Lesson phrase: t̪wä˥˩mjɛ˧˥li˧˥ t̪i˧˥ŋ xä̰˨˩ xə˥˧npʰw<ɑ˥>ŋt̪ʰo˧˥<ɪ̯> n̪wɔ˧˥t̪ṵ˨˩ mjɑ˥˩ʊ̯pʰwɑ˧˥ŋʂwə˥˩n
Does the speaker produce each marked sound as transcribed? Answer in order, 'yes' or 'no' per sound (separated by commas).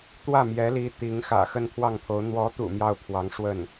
no, no